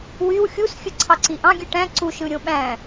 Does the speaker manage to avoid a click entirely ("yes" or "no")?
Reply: no